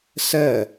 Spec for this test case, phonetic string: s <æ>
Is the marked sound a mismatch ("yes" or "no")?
yes